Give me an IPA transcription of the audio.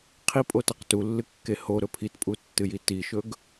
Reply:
qʰipʼotɐq tulːɨkːe hoɾɵ pʰitpʼutːɨji tiʃɵɡ

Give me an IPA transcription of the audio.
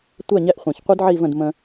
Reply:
tʷɛ˥˩ɲɛ˥˩ʔχʷɛ̃˩ç qʷɯ˥dʕi˥˩və̃˥˩d mə̃˧

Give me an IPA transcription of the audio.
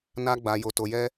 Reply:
na˦ɡ͡ba˧ jo˧to˧jɛ˦

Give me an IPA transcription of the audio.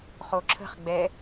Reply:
χoǁʰə̤χ ɡ͡bɛ

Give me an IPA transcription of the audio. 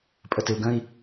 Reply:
pʼətɪu̯ɡə̃i̯

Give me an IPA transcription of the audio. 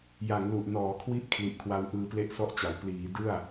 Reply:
ja˩˦ŋlu˨˩ʔnɔː˩˦kʰwi˦˥ʔ kʰli˨˩ʔkʰwa˧w ʔɯː˧ple˥˩ʔsɔ˥˩ʔt͡ɕa˩˦w pliː˩˦ dɯ˥˩a̯

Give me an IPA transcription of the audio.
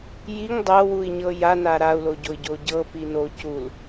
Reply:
jiŋ dˤɤwui̯ɲɤ jana ɾau̯loɟoi̯ɟo ɟɤpi no cul

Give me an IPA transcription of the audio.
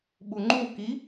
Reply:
ɓuŋ͡ǃuki

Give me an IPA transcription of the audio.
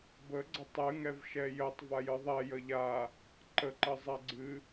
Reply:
bəɡ͡ǀə tˤɨŋɛv ʃɛjətˤ vajɨðˤɛjə ʎa | ǃəǃə zˤɛɡ͡ǀɨ

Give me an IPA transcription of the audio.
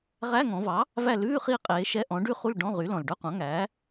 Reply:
ʁæ˧˥˧ŋɔ̃˩˧vɑ˩˥ | væ˦˨ lʉː˧˥˧χi˦˨qʼeː˩˧ ʃɛ˧˥˧ʔɔ̃˩˥ ɖʉ˦˨χu˦˨l ɖɔ̃˧˥˧ʁy˩˥lɔ̃˩l ɖœ˧˥˧qʷɑ̃˩˥ŋæː˩˥

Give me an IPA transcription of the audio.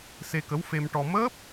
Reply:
se˧kə˧˥wfe˧mʈɔ˧ məː˦˥p̚

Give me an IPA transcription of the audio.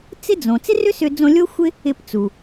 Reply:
t͡sɪ˥d͡zõ˩ t͡sɪ˥rʏ˥sʏ˧d͡zõ˧ lʲo˥xʷɪ˥ | ɪ˧pt͡su˩

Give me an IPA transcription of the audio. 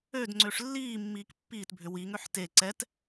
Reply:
ød ŋ͡ǀøʂlːiːmːiːk pːiːtbʱʏ wiŋøħ te ǀɛt

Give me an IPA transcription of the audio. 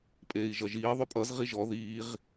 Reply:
pʼeːi̯ʒʌʒiː ðˤøpʼʌz ʁiʒɔ ðiːʁ

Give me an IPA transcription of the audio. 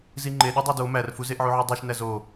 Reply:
ziŋ͡ǃe ɗodˤædo mærfu zeʔʕuʕudˤuʃ næzo

